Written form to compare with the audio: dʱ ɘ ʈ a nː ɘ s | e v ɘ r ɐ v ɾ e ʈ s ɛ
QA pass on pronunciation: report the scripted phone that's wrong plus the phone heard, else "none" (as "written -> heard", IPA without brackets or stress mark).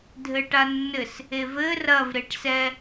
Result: none